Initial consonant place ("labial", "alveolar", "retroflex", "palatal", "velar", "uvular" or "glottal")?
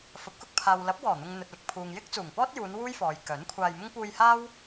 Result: labial